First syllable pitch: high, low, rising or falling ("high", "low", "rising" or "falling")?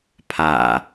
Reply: low